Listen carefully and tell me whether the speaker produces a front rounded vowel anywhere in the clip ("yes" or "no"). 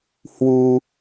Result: no